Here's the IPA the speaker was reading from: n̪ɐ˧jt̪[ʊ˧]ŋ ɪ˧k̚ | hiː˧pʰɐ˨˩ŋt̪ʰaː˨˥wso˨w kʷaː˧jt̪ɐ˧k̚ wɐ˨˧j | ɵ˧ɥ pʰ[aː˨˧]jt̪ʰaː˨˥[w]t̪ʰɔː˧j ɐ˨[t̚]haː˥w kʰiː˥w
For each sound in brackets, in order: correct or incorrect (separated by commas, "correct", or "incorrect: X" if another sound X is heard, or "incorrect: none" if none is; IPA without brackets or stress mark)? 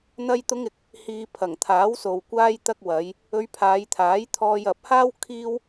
correct, correct, incorrect: j, incorrect: p̚